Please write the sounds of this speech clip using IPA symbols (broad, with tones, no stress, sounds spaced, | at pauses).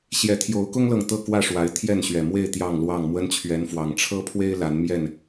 ɕ j ɛ˨˦ t̪ʰ j o˨˦ ʊ̯ k ʊ˦ ŋ l ɤ˨ ŋ t̪ ɤ˥˨ k w ä˥˨ ʂ w a˨˦ ɪ̯ t̪ʰ j ɛ˥˨ n ɕ ɥ ɛ˨˩ m w e˥˨ ɪ̯ t̪ j ɑ˥˨ ŋ l w ɑ˥˨ ŋ m w ə˦ n t͡ɕʰ ɥ ɛ˨˦ n f w ɑ˨˩ ŋ ʈ͡ʂʰ ɤ˦ pʰ w e˦ ɪ̯ l a˨˦ n m j ɛ˥˨ n